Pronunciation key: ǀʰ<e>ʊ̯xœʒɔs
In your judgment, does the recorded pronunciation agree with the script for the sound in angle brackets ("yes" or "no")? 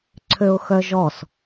no